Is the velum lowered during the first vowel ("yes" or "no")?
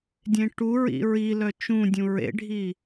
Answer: yes